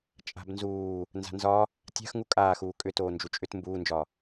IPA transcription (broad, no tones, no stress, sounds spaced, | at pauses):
t͡ʃʼ a̤ b n z uː | n z a̤ n z ɒ | tʲ a̤ x ŋ u kʼ aː x uː kʼ ʏ t oː n d͡ʒ u t͡ʃʼ ʏ t m b uː n d͡ʒ ɒ